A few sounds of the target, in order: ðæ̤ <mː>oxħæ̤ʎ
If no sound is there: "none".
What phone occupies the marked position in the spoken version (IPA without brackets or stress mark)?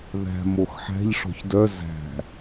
m